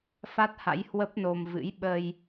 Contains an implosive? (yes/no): yes